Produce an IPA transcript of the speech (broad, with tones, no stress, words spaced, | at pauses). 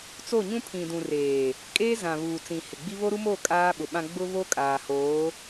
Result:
t͡so˦˨ɲũ˦pʰĩ˨dũ˨ reː˨ | kʼeː˦zã˨βuː˨ t͡sĩ˨ hɪ˨ɡ͡bi˦ βo˦ɾu˦mo˦˨ kʼaː˦ɓʊ˨ ɓã˦ ɡ͡bʊ˦βo˦kʼaː˨hoː˨˦